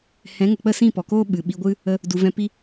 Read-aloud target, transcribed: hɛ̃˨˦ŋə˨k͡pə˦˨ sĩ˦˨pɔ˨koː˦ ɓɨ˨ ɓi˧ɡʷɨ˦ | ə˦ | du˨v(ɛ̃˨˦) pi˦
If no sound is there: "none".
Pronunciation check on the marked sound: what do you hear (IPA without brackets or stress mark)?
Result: ɛ̃˧